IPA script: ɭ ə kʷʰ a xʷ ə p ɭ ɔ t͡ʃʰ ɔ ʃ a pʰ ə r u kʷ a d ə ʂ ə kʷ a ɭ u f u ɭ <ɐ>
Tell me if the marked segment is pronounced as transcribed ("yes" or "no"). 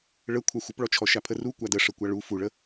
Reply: no